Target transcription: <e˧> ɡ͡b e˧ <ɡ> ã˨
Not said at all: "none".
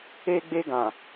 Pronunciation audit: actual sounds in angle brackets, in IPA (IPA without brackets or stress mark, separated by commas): e˧, ɡ